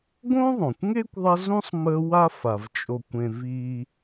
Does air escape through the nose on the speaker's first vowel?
yes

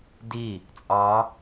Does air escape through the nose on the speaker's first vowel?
no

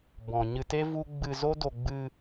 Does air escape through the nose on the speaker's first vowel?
yes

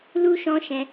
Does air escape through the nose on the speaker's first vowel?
no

